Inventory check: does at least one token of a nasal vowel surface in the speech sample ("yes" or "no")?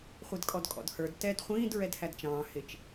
yes